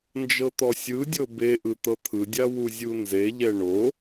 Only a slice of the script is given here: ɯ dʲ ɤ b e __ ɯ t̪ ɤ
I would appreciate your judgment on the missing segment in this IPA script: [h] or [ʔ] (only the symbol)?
ʔ